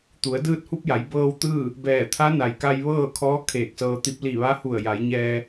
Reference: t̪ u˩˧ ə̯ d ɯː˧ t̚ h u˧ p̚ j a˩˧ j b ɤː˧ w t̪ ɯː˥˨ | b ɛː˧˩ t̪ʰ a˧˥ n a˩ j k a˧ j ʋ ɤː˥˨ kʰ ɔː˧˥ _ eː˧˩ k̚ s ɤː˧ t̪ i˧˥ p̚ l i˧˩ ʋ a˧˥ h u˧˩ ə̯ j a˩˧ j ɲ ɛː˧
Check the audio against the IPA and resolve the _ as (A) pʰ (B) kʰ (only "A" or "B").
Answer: B